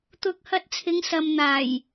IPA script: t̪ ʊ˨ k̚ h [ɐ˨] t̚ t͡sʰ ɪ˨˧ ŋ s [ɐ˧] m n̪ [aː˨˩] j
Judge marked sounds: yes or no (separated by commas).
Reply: no, no, yes